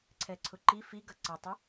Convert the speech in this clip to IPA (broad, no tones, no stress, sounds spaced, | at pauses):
ǀʰ ɛ ǀʰ ʊ ǃ i f i ɡ ʌ ǀ ə tˤ ɪ